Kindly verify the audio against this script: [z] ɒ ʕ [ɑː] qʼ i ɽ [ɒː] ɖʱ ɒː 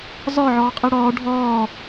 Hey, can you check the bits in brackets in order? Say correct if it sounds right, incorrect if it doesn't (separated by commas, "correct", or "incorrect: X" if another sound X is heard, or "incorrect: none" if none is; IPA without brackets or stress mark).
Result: correct, incorrect: ɒː, correct